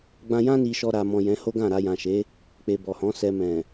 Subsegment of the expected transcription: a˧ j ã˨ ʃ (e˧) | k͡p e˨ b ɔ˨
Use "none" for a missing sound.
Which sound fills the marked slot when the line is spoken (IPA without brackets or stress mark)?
e˨˦